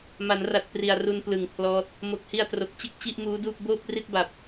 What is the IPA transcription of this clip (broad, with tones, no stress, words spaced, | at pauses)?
ma˩˦nra˨˩t̚ pri˨˩a̯ru˧n plɯ˨˩ŋpʰlɔː˦˥t̚ | mo˨˩k̚hi˧a̯tro˨˩k̚t͡ɕɯ˥˩k̚ t͡ɕi˥˩ʔmuː˦˥duː˥˩p̚ boː˥˩p̚ri˥˩t̚ba˨˩p̚